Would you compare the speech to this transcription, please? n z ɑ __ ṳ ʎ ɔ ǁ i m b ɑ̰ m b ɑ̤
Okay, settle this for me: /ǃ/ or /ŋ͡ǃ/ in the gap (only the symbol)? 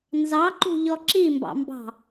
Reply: ǃ